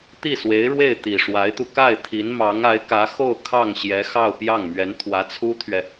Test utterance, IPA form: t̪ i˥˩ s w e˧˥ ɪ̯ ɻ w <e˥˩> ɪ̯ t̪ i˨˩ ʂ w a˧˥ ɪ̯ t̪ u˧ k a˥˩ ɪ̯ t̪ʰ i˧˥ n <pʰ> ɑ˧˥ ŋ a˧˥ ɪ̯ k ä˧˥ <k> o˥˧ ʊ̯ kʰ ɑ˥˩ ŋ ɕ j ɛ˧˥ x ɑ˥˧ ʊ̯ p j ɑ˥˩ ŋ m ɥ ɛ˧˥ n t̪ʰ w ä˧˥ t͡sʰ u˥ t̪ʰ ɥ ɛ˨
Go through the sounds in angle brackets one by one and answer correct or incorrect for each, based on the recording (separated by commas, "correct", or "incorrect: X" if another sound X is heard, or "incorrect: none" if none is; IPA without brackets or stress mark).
correct, incorrect: m, incorrect: x